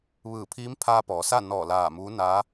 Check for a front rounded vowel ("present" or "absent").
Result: absent